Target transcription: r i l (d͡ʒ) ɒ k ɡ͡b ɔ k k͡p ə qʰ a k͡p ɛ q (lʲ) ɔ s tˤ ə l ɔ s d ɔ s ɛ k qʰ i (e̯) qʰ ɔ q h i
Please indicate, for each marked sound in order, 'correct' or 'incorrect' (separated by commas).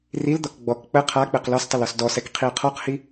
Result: incorrect, incorrect, incorrect